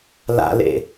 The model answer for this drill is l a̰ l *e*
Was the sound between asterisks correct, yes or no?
no